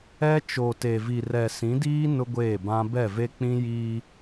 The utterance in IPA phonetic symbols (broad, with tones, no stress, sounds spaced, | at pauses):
ɛ˦ t͡ʃ o˨ t e˨ v i˨ r ɛ˨ s ĩ˨˦ d iː˦ n ʊ˦ ɡʷ eː˦˨ b ã˦ b ɛ˦˨ v e˦ k͡p ĩ˦ j iː˦